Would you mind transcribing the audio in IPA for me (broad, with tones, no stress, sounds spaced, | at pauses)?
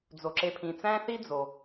d͡z o˩ ǁ e˨ pʰ ĩ˩ t͡s æ̃˥ θ i˥ d͡z o˩